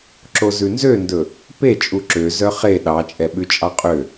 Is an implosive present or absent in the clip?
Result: present